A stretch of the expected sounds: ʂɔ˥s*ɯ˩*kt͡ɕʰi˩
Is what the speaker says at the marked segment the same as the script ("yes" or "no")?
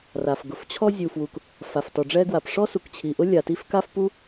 no